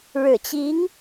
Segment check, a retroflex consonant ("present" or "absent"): present